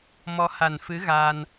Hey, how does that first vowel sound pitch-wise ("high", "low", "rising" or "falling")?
rising